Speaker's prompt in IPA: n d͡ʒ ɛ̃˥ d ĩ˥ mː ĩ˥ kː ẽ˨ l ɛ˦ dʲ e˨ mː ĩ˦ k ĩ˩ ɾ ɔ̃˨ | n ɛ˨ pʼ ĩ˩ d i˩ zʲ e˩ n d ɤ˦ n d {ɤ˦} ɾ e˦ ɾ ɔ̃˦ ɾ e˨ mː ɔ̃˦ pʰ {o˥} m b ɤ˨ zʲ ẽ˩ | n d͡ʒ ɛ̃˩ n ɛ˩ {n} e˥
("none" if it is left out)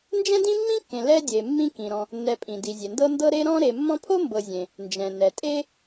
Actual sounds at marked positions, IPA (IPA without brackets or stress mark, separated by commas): ɤ˦, o˥, tʼ